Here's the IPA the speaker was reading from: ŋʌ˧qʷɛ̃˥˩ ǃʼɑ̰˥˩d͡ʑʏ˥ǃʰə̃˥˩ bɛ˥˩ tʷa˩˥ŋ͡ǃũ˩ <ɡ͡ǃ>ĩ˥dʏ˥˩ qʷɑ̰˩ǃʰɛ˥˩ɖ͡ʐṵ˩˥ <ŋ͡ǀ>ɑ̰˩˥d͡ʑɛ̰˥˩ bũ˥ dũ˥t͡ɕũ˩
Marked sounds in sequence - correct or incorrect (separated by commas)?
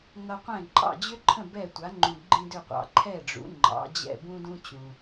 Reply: correct, incorrect